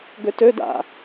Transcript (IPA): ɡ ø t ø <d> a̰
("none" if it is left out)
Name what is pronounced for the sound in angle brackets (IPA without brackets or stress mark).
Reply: d